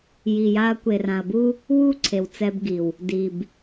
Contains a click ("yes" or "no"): yes